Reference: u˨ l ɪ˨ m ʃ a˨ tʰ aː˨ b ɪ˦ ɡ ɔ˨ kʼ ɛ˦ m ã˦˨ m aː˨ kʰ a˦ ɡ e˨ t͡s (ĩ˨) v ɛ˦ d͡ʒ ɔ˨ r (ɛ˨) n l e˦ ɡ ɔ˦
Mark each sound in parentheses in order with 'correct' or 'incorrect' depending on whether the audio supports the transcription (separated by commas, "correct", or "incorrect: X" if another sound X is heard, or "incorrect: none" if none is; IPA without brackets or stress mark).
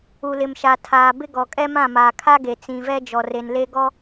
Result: correct, incorrect: e˨